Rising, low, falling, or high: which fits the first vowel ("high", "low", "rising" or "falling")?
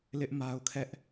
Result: high